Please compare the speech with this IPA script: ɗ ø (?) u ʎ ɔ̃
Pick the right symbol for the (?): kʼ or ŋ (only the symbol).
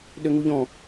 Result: ŋ